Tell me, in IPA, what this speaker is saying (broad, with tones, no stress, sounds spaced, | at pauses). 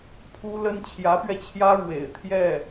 pʰ u˥ l ə˥ n t͡ɕʰ j ä˧˥ p ɥ ɛ˧ t͡ɕʰ j ä˥ ɻ w ḛ˨˩ ɪ̯ t̪ʰ j ɛ˥˩